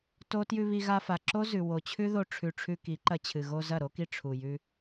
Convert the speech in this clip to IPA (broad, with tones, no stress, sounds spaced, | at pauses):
t o˦ t j ʉ˧ β i˧ ɣ a˧ f a˨ ǁ o˦ z ʉ˨ w o˨ t͡ɕʰ ʉ˦ ð o˧ ʈ͡ʂʰ ʉ˨ ʈ͡ʂʰ ʉ˧ k i˨˦ ǃ ɐ˧ t͡ɕʰ ɨ˨ ɣ o˧ z ɐ˦˨ ɾ o˦ k i˧ ʈ͡ʂʰ u˨ j ʉ˧